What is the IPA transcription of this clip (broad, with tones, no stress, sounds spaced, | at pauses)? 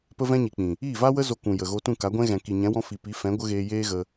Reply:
p ə˦ v ɛ̃˦ ɲ i˨ k͡p ĩ˨ | iː˦˨ v a˦ w ə˦ z o˧ k ũ˨ j ə˨ ɣ o˧ t ũ˦˨ k a˨˦ ɡʷ ɛ̃˦ ɣ ɛ̃˨ k i˨ ɲ ɛ̃˨˦ w ɔ̃˧ f i˨ p i˨˦ f ɛ̃˨˦ ɡʷ ə˦ ɣ eː˧ j eː˦ ɣ ə˧